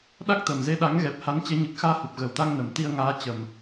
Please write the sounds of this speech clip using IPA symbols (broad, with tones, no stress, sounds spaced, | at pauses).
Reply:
ɗ a˦˥ k̚ t̪ ə˨˩ m z e˧ ɗ a˨˦ ŋ ɣ ɛ˨˩ p̚ h a˨˦ n t͡ɕ e˨˦ ɲ ɨ˨˩ k̚ x aː˧ h u˨˩ p̚ ɣ ə˨˩ w t̪ a˧ ŋ n ə˨˩ m t̪ i˧ ə̯ ŋ aː˨˦ t͡ɕ ə˨˩ m